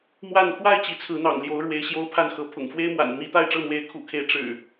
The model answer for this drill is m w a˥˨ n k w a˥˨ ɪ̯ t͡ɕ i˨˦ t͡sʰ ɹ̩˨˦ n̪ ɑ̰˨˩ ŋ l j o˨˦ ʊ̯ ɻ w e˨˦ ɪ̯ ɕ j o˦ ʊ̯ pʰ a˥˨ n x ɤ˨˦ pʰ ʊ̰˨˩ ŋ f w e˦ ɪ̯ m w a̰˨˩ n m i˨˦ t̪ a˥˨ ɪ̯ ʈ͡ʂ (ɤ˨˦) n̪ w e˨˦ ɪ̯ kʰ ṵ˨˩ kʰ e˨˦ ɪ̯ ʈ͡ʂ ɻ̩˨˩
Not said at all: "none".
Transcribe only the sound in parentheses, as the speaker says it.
ɤ˥˨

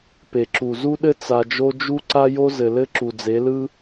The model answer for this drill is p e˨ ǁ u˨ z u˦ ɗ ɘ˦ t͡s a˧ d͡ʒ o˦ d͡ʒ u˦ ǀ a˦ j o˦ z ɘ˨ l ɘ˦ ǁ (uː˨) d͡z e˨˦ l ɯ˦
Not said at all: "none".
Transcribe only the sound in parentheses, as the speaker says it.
u˨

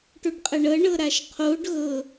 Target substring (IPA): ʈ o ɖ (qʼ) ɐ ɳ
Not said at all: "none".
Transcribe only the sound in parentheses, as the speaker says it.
qʼ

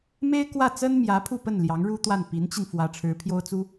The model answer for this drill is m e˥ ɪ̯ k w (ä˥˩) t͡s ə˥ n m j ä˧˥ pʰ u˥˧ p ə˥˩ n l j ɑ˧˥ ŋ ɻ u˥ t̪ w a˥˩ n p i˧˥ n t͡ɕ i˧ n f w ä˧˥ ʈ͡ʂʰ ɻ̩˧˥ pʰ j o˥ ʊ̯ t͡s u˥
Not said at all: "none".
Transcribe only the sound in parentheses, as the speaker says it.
ä˥˩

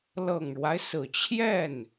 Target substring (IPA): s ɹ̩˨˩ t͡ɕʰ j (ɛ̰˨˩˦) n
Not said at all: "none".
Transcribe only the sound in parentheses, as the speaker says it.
ɛ˥˩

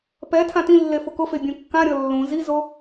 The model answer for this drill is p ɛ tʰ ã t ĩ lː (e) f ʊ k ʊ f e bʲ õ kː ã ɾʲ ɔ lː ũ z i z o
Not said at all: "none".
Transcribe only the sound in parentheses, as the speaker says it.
e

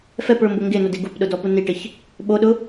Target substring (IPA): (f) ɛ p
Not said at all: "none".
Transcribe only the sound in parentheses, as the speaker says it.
f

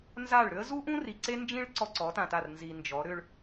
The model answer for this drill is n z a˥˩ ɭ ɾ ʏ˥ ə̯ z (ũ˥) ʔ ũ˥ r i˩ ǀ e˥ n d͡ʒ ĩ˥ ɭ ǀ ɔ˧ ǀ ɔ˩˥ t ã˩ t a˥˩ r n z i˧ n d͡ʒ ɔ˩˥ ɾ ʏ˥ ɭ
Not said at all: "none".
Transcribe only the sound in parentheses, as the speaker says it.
u˥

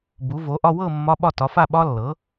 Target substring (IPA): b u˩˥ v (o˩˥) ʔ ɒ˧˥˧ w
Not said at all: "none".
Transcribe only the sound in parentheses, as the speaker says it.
o˩˥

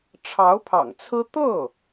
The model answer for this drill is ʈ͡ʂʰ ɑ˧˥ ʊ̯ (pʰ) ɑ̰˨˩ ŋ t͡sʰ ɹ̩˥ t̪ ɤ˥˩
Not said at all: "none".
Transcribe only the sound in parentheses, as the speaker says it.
pʰ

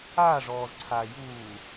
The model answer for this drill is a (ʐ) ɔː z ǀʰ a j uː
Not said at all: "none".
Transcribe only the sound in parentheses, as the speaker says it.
ʐ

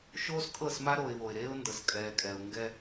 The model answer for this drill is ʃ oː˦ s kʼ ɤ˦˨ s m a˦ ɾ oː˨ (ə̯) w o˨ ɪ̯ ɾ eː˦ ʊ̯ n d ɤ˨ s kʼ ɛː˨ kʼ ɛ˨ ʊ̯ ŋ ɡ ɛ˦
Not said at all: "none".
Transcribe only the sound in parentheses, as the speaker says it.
ɪ̯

